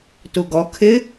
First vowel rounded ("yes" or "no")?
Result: yes